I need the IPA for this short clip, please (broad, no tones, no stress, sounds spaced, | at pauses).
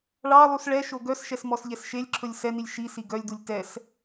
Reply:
ɭ ɑ lˠ u s ɭ ɛ ʃ o ɡ œ s ʃ ɛ s m ɔ s ʎ ɛ s ʃ e lʲ ǁʰ ɵ lʲ s ɛ n i lʲ ʃ i s i ɡ œ lʲ d u lʲ t ɛ s